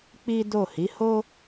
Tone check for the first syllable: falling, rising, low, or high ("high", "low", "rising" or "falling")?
high